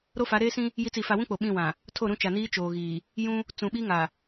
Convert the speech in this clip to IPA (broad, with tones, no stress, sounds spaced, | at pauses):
ɾ o˦ f a˨˦ ɾ eː˦ s ĩ˦ | j i˨˦ t͡s i˨ f a˨ w ũ˦ k͡p o˨ ɓ ĩ˦˨ w ã˨ | tʰ o˦˨ ɾ ũ˦ t͡ʃ a˨ n iː˦ t͡ʃ oː˨ ɣ iː˨ | j ũ˦ | t͡s ũ˨ ɓ i˦ ŋ a˨